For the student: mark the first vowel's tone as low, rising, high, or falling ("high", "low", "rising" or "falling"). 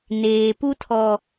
low